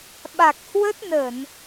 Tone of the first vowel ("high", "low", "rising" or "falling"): low